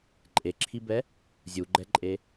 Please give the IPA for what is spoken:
ǃʼ e ǁʰ i b ɛ | zʲ u ɡ͡ǃ ɛ ǃʼ e

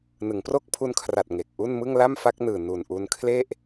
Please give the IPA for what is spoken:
n ɯ˩˦ ŋ p r o˦˥ k̚ pʰ u˧ n kʰ r a˨˩ t̚ ŋ e˨˩ k̚ ʔ u˥˩ n m ɯ˥˩ ŋ l a˥˩ m f a˦˥ k̚ n ɯː˨˩ n u˨˩ n ʔ u˧ n kʰ l e˥˩ ʔ

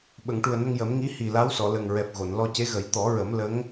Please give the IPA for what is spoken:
ɓ ə˨˩˨ ŋ ʈ u˨˩ ə̯ n ə˧ ŋ j ə˨˩˦ m ŋ i˧˥ h i˨˩ l a˧˥ w s ɔ˨˩˨ l ə˨˩ ŋ ɹ ɛ˨˩ p̚ ɣ o˨˩˨ n l ɔ˧ c e˧˥ ɣ ə˨˩˦ j t̪ ɔ˨˩˦ ɹ ə˨˩˦ m l ə˧˥ ŋ

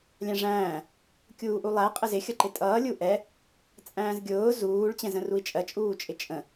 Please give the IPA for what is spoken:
lʲ æ̃ ʐ æ̃ː | kʲ uː ʔ u lˠ æ qʼ ə z ɪ xʲ ʌ ǃ ɪ tʼ ʌː lʲ u ʔ ɛ | t͡sʼ æ̃ː z ɡʲ ʊː z uː ɭ t͡ɕ ɛ̃ z ə̃ r u i̯ t͡ʃʼ ɜ t͡ʃʼ uː t͡ʃʼ ɪ t͡ʃʼ ə̃

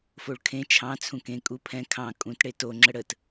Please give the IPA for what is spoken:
f o ɭ kʰ ẽ t͡ʃʰ ɑ̃ t͡sʰ ũ k ẽ kʼ u pʰ ɛ̃ kʰ ɑ̃ kʼ ũ t ɽ e t o ŋ͡ǁ ə ɽ ə t

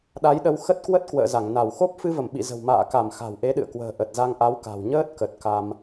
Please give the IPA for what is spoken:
ɗ a˨˦ j ɗ ə˧ w x ə˦˥ t̚ k w ə˦˥ t̚ k w ə̰ː˧˨ z a˧˩ ŋ n a˧˩ w x o˦˥ p̚ f ɨ˧ v ə˧˩ m ɓ ḭ˧˨ z ə̤˨˩ w m a̰ː˧˨ k a˧˩ m x a̤˨˩ w ʔ e˨˦ ɗ ɨ̰˧˨ ə̯ k w ə̤ː˨˩ ʔ ə˨˩ t̚ z a˧ ŋ ʔ a˨˦ w k a̤˨˩ w ɲ əː˦˥ t̚ k ə˨˩ t̚ k a˧ m

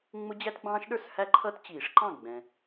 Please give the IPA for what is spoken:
ŋ͡m ʊ˦˥ d͡ʑ æ˦˥ t ɡ͡b ɑ̃ː˦˥ ʃ ɗ ə˞˥˨ s h æ˦˥ ǃʰ ʌ˦˥ t t͡ɕ iː˨˩˦ ʂ ǃ ɑ̃˥˨ ɡ͡b ɛ̃˨

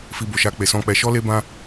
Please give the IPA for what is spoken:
f i˧ b o˨ ʃ a˧ k͡p e˨ s ɔ̃˧ k͡p ɛ˧ ʃ ɔ˦ l e˦ b ã˦

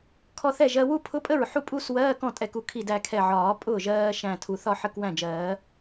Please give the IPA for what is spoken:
kʰ ɔ˧ θ ɛ˥˩ ʒ ɜ˧ w u˥˧ pʰ ʊ˧˥˧ pʼ ə˥˩ ɹ ħ u˥˩ pʼ u˧˥˧ s w ɜː˧˥˧ k ɔ̃˥˩ tʼ ɛ˧˩ k u˧˩ kʰ i˧˩ d æ˧˩ kʰ ɛ˧˩ ʕ ɒː˨˩˦ pʼ ʊː˥˩ ʒ ɜː˧ ʃ æ̃˧˩ tʰ u˨˩˦ θ ɒ˥˧ ħ ə˧˥˧ k w æ̃˥˩ d͡ʒ ɜː˨˩˦

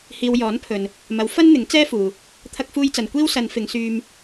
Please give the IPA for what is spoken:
h iː˨ w j ɔː˨˥ n pʰ ɵ˨ n | m ɐ˨˥ w f ɐ˥ n n̪ ɪ˨˥ ŋ t͡s ɛː˥ f uː˨ | t̪ʰ ɐ˧ k̚ f uː˧ j t͡s ɐ˨ n kʷ iː˥ w s ɐ˨˧ n f ɪ˨˧ ŋ s yː˧ m

